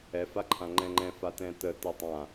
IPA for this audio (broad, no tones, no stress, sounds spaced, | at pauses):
ɛ f a ǃʰ ã ŋ͡ǃ ɛ̃ ŋ͡ǃ ɛ̃ f a t ɛ̃ t ə t ɛ tˤ ã